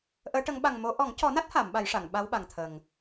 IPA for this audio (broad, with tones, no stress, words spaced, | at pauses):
ʔəː˧˥ʈə˧˥ŋ ɓa˨˩ŋ mo˨˩˦ ʔɔ˨˩˦ŋcɔ˨˩˦na˦˥t̚ha˨˩˨m ɓa˨˩˦jʂa˨˩˨ŋ ɓa˧˥w ɓa˨˩ŋt̪ʰə˨˩ŋ